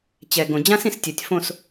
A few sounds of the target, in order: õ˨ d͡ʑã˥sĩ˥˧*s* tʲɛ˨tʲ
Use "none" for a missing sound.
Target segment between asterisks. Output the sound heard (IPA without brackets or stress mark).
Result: s